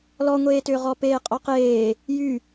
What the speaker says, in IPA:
l ɔ ŋʷ eː t ʏː ʁ ɔ p eː qʼ ɔ q eː | j y

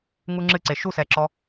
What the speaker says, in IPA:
ŋ u ŋ͡ǁ ɨ ǀ e ʃ u s ɛ ǁ ɔ

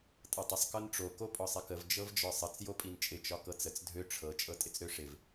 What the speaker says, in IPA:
tʼ ɤ tˤ ə sˤ k ɤ n ʈ͡ʂ o k o pʼ ɒ sˤ ɪ k ə v d͡ʒ ɤ v d͡ʒ ɒ sˤ ə t͡s j o pʼ i n t͡ʃʼ ɪ t͡ʃ ɒ k ɤ t͡s ə t͡s dʱ ø ʈ͡ʂʰ ɤ t͡ʃʼ ɤ tʼ ɪ t͡s ɾ ø ʂ ɪ v

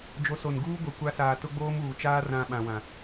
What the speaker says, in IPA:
d͡ʒ o˨˦ s o˨ n ɡ uː˦ ɡʷ ɛ˨ kʷ a˨˦ s aː˨ t ʊ˦ ɡ͡b oː˦ m uː˨ t͡ʃ aː˦ r ã˨ ɓ ã˨ w ã˨

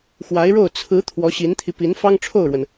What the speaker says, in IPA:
x w a˧˥ ɪ̯ ɻ o˥˩ ʊ̯ t͡sʰ ɹ̩˧˥ t̪ʰ w ɔ˧˥ ɕ i˧˥ n t̪ʰ i˧ p i˧˥ n f ɑ˥ ŋ ʈ͡ʂʰ o˥˩ ʊ̯ ɻ w ə˩ n

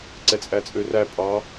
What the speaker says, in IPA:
ǀ ɛ t͡sʼ æ t͡sʼ ø r æ pʼ ɑ

